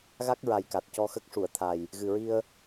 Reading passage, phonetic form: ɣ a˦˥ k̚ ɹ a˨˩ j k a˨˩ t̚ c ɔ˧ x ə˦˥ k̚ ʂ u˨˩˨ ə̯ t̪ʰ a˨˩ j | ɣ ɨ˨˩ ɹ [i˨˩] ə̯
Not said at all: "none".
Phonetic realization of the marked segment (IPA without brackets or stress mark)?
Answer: i˧